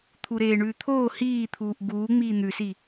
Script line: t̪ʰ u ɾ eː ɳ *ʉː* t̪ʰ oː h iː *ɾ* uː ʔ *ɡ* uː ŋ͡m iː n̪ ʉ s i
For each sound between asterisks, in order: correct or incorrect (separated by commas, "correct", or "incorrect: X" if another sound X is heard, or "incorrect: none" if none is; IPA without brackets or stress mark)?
correct, incorrect: t̪ʰ, correct